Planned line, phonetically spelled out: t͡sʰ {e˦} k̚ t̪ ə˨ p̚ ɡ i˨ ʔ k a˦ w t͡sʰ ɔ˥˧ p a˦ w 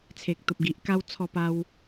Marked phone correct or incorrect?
incorrect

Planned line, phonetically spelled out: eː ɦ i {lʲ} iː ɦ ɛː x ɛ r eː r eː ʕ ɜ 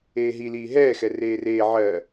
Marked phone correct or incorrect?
incorrect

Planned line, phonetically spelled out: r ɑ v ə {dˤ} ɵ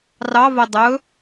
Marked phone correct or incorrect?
correct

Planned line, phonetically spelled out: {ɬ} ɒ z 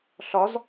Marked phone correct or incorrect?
correct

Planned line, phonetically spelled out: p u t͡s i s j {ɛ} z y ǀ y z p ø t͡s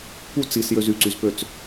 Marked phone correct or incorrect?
incorrect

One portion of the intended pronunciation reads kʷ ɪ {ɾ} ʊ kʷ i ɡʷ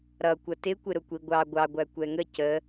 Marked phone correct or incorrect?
correct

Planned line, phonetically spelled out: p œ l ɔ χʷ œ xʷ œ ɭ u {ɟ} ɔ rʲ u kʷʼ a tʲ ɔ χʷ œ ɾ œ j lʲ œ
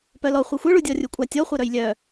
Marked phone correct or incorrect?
incorrect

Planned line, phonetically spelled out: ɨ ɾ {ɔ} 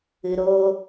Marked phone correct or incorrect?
incorrect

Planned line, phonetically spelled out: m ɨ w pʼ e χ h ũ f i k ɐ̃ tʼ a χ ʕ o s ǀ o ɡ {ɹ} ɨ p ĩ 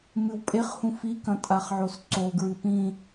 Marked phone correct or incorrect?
correct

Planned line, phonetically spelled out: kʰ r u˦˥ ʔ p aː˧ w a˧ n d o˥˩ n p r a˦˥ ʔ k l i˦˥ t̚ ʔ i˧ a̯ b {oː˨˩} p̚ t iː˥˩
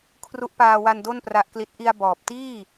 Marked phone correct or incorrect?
incorrect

